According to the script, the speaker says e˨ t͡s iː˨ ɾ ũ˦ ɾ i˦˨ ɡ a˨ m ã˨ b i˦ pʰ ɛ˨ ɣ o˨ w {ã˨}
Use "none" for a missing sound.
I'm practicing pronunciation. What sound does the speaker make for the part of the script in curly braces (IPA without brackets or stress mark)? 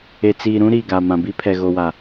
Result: a˨